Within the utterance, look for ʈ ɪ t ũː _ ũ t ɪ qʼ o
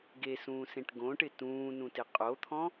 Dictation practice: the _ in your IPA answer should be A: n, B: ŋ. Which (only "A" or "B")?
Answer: A